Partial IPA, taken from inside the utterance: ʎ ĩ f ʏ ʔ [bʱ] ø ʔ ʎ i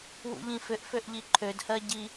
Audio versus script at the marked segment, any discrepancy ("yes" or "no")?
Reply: yes